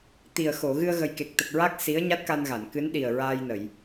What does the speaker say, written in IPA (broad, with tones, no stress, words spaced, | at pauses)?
t̪i˨˩ə̯ xo˨˩˨ ɣɨ˧ə̯ɣə˨˩jke˨˩k̚t̪ə˨˩k̚ ɹa˦˥k̚ si˧˥ə̯ɲa˦˥t̚ka˧nɣa˨˩˨n kɨ˧˥nɗi˨˩ə̯ ɹaː˧jnə˨˩˨j